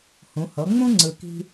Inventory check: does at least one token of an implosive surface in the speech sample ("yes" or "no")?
no